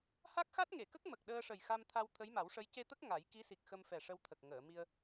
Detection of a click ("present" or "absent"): absent